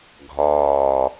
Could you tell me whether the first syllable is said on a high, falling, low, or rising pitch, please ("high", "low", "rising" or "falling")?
low